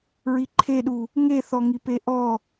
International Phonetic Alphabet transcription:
ɹ i ǃʰ e ɗ u | ŋ e θ ɔ ŋ i p e ʔ ɔ

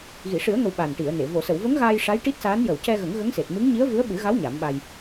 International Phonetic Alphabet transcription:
ɣ i˨˩˨ ʂ ɨ˨˩˦ ə̯ ŋ ə˨˩ w ɓ a˨˩ n ʈ i˨˩˨ ə̯ n e˨˩˨ v o˨˩˨ s ə˨˩˨ w v ə˧˥ ŋ ɣ aː˧ j ʂ a˧˥ j ʈ i˦˥ t̚ s aː˧˥ n j ə˨˩ w c ɛ˧ ɣ ə˨˩˦ ŋ ɣ ə˧˥ ŋ s e˨˩ t̚ m ɨ˧˥ ŋ ɲ i˧˥ ə̯ v ɨ˧˥ ə̯ ɓ ɨ˨˩˦ ɣ a˧˥ w ɲ a˨˩˦ m ɓ a˧ j

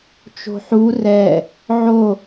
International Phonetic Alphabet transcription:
t͡ʃ o̤ ħ u r ɛ | ʕ o

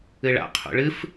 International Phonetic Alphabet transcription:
ɨ ɭ a̰ qʰ ṵ ɭ ɨ f

